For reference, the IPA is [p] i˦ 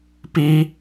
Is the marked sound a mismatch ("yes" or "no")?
no